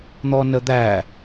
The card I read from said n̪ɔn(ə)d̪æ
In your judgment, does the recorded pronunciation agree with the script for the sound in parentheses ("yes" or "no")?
yes